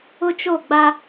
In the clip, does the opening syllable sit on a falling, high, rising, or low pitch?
high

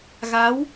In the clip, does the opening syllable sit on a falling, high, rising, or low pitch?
rising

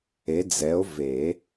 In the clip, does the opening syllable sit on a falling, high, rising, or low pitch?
rising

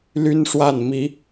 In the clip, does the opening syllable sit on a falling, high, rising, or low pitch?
high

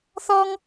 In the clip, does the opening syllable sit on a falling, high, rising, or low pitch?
high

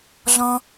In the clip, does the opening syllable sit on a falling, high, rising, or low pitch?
high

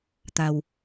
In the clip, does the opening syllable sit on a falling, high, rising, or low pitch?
low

